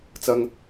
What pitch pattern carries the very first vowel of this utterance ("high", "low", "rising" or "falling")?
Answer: high